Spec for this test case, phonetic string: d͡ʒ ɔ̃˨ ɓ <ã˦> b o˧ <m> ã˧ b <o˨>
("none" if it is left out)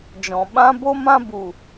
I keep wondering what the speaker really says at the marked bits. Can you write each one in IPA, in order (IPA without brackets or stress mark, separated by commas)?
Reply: ã˦, m, u˨